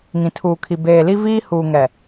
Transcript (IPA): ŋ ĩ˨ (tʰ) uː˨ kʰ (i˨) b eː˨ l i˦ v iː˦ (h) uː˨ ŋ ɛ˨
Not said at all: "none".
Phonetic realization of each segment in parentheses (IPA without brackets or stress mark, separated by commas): tʰ, i˨, h